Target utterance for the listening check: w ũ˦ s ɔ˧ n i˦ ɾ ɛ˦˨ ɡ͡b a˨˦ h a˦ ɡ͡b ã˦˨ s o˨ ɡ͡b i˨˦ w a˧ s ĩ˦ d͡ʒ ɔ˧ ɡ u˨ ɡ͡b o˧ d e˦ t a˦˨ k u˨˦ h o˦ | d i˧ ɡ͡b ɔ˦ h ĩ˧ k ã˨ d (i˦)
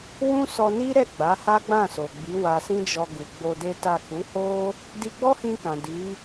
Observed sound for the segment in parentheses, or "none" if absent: i˨˦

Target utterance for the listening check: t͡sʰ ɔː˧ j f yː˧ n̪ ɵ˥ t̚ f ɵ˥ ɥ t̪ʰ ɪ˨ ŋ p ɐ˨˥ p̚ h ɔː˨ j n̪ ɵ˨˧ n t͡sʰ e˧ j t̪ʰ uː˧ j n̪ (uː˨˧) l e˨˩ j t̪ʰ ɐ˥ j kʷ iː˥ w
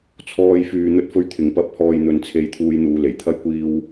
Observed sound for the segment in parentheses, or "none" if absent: uː˨˧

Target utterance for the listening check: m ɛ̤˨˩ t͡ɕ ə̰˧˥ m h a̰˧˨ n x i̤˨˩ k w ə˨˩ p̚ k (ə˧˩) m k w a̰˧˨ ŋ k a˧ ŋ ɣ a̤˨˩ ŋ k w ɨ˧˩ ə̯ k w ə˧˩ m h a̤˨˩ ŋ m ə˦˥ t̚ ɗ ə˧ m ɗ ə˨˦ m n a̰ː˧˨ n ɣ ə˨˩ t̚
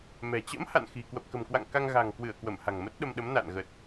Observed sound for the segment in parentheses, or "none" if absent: ə̤˨˩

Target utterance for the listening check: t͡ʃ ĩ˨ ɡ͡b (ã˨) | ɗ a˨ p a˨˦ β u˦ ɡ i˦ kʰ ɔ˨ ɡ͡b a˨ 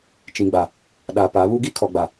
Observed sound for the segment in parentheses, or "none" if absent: a˨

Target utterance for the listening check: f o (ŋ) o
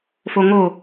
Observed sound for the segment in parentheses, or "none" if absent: ŋ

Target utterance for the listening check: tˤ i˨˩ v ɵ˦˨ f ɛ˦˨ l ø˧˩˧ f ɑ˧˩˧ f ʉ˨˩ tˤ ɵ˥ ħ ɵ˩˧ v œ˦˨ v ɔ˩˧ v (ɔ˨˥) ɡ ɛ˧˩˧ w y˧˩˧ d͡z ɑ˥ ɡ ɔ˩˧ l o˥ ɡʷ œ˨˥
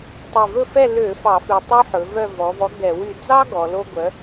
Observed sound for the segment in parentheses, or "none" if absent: ɔ˨˥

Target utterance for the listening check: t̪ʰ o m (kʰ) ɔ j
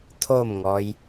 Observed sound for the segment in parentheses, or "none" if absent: ŋ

